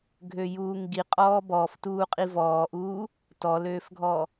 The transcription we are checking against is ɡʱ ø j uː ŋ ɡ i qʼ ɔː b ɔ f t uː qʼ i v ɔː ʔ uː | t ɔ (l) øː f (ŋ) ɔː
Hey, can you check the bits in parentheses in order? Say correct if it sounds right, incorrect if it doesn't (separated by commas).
correct, incorrect